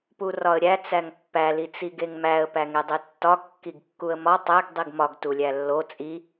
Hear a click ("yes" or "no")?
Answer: no